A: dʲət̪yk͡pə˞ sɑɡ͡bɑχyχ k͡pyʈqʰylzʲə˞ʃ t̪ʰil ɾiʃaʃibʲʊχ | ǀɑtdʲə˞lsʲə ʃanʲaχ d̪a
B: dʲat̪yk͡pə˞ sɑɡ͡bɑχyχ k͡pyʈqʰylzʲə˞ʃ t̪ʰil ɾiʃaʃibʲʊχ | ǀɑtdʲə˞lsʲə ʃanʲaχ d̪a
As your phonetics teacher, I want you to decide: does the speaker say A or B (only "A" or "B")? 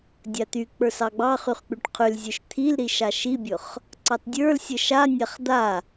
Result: B